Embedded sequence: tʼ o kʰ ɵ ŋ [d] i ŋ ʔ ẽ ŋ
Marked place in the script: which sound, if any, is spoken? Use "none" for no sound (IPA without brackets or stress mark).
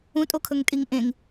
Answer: tʼ